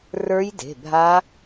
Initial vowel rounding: unrounded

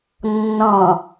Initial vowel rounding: rounded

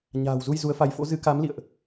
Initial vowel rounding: unrounded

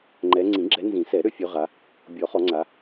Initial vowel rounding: unrounded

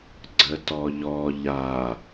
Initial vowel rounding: unrounded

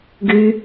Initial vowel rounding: rounded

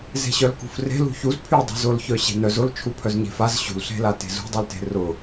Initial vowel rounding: unrounded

